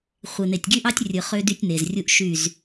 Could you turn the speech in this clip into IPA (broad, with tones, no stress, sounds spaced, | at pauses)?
χʷ e˨ n̪ e˨ tʲ ɡ y˦ ʔ ɑ˦ tʲ rʲ ɯ˨ χ ø˦ d y˦ tʲ n̪ e˨ z rʲ u˦ ʔ ʃ y˦˨ z